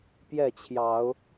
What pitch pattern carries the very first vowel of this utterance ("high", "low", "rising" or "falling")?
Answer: falling